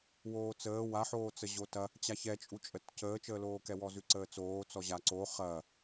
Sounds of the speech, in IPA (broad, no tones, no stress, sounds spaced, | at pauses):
w oː t͡s əː w a ħ oː t͡s ə ʑ o t ɐ | t͡ɕ a ç ɛ t͡ʃʼ u t͡ʃʼ ə t c əː t͡ʃ əː l oː k ɛ w ɔ z ʉ ǀ əː t͡s oː t͡s ɔ ʑ a ǀ o χ ɐ